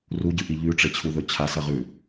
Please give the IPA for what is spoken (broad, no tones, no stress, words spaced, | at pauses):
ruɟɨʔi ʎʉʈ͡ʂet͡ɕʰuðɵ t͡ɕʰasɐʁʉ